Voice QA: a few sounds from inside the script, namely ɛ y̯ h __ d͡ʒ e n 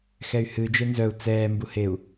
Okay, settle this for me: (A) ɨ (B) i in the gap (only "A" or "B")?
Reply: A